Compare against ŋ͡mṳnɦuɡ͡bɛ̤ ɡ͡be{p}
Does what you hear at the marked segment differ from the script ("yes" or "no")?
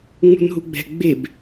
yes